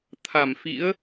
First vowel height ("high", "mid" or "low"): low